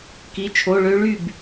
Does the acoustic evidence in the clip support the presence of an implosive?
no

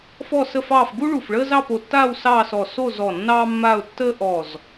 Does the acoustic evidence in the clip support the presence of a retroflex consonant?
yes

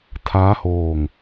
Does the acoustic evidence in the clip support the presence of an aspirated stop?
yes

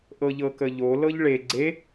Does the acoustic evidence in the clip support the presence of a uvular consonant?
no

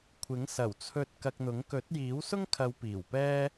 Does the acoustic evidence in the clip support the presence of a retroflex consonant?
no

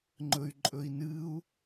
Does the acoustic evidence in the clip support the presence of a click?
yes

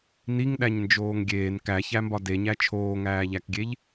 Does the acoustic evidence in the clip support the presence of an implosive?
yes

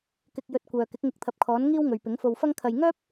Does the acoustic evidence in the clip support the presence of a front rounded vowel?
yes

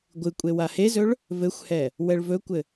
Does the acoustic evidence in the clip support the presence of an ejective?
yes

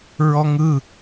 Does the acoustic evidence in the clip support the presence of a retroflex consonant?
no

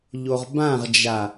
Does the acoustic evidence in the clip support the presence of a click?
no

